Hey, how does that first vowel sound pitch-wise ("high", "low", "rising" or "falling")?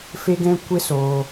high